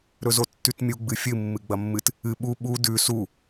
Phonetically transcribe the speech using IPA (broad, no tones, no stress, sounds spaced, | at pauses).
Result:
ɾ ɵ z o tː ʉ t mʲ u ɡ͡b ɨ fʲ ɨ mː ɨ ɡ͡b ɐ mː ɨ t | ɨ ɓ u ɓ u d ʉ s u